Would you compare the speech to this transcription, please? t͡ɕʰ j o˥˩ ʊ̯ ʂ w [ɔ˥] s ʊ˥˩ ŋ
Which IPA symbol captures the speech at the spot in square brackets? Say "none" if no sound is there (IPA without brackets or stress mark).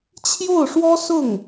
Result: ɔ˥